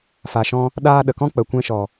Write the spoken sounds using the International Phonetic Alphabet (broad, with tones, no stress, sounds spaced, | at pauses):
f a˨ ʃ ɔ̃˧ | ɗ aː˧ ɗ ə˨ k ɔ̃˦ k͡p ə˨ kʷ ɛ̃˧ ʃ ɔ˨